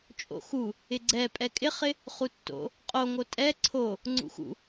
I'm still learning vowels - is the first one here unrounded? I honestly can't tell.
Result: no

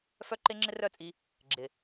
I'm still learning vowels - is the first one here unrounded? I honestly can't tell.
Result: no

